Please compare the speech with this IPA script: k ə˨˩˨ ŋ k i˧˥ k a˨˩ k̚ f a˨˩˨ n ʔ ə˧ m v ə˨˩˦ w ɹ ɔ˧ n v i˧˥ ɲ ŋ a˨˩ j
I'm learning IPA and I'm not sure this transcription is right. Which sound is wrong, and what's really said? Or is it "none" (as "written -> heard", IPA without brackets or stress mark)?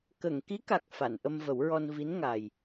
ɲ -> n